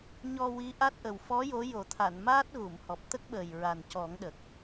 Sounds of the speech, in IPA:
ɲɔ˧wi˧˥ ʔa˦˥t̚ʔə˨˩w fɔ˧˥ jo˧˥jo˨˩˦ t̪ʰa˨˩˨nmaː˦˥t̚ ɣu˨˩˨mhɔ˨˩p̚ t̪ə˦˥k̚ɓəː˨˩j ɹa˨˩ncɔ˨˩˦ŋɗə˨˩k̚

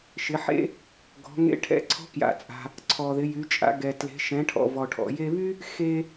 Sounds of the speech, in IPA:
ʃɪ˩˧ħḛ˥ | ɡɔ̤˩˧ŋḛ˧˥ ʈʰɛ̰˧ǀʰɔ̤˧˥kja̰˩t͡sʼa̤˩ | ǀʰɔ˩ðɪ˩˧jy˩˧t͡ʃʼa̰˩˧ ɡɛ˩ tle̤˩˧ʃɛ̃˩˧ʈʰɔ̰˩ vɔ˩ʈʰɔ̰˩je˧βy˥ | xe˧

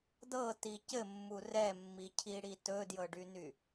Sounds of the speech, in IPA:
dɤti cɘmːu rɛmːicʰiɽi tɵdjɤɖyny

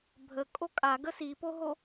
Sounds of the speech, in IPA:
bʱə kʼokʼa ɡəsipoɦo

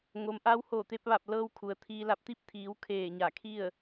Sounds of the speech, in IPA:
ŋo˩˧mʔa˧˥w hoː˧˩t̪e˧p̚ʋa˧˩p̚ lɤː˧w kʰu˩ə̯t̪ʰiː˧la˧p̚ t̪i˧˥p̚t̪ʰiː˩˧w kʰeː˧˩ɲa˧˩kʰi˥˨ə̯

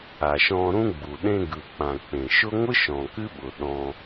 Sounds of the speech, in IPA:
a˨ʃɔ̃˧ɾũ˦ɡ͡bu˨ ɗẽ˧ɡɯ˨k͡pã˨ k͡pẽ˨ʃʊ˦ ŋʷɯ˦ʃɔ̃˨ kɨ˦ɓʊ˨ ɗɔ̃˧

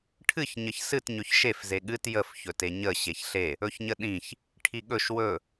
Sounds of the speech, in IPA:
ʈʰɨç ɲəçsɨt ɲɵçʃef zeɠɨt jəf çɵteɲə ɕeçɬe | ɵçɲəɗĩç | ʈʰiɠɵʃ wɵ

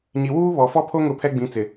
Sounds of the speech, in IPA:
ɲi˨wuː˦ βɔ˨fɔ˦pʰo˦ ŋʊ˦˨pʰɛ˦ɡ͡bĩ˨˦t͡sɪ˨

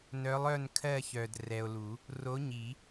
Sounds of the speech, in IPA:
nœ˨˥lˠœ˥˨nkʰɜ˥˨çœ˨d rɛ˨o̯lu˨˩˦ | ro˨˥ɲi˨˩˦

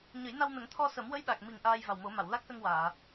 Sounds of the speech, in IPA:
ɲə˨˩˦jna˧wnə˨˩˦ŋ t̪ʰɔ˧sə˨˩˦m wə˧˥jɗa˨˩k̚mi˨˩ŋ ʔaː˧jva˨˩wmo˨˩˦ma˨˩˨w la˦˥k̚sə˧ŋ waː˨˩˨

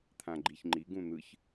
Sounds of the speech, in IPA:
t̪ʰãɡ͡ǃiçŋ͡ǃiɡ ũn̪ɯç

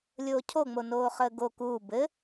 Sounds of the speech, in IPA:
lʲoːcʰoŋ͡mo noːχəːɡo kuː bɘ

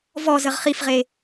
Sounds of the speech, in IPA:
vɔzəʁ χifʁe

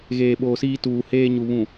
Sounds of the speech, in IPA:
ɣeː˨ɓoː˨siː˦ tuː˨heː˦ɲu˨βũ˨

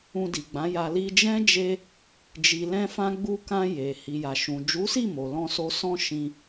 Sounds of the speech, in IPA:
ũ˧di˨ɡ͡bã˨˦ja˧ li˧d͡ʒɛ̃˦d͡ʒe˧ | d͡ʒi˨lɛ̃˧fã˧ ɡ͡bu˧kã˧ je˨ hi˨ja˨ʃũ˨ d͡ʒu˨˦si˦˨ mo˨lɔ̃˧so˧ sɔ̃˦ʃĩ˧

